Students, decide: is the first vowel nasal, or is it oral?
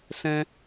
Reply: nasal